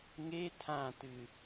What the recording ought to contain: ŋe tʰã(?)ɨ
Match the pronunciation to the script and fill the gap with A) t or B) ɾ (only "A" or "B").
A